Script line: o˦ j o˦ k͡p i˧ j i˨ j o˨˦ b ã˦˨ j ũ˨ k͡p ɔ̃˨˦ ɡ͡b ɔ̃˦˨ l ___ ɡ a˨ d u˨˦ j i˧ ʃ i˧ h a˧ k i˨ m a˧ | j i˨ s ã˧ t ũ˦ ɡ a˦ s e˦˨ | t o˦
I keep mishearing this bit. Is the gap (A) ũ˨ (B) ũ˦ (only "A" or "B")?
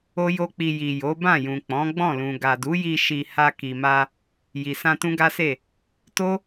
A